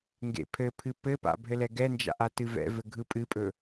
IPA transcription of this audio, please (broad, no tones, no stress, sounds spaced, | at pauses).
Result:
ŋ ɡ ḛ pʰ ɘ pʰ ɨ p ɘ p a̰ bʱ ɘ l ɛ ɡ ɛ n d͡ʒ a̰ ʔ a t ɨ v ɛ̰ v ɘ ɡʱ ɯ pʼ ɨ pʼ ɵ